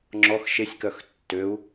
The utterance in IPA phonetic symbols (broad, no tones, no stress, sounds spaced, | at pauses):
ŋ͡ǁ ɔ x ʃ e sʲ k œ x tː ø u̯